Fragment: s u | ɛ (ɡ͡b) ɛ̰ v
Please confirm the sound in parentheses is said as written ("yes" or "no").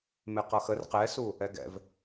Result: no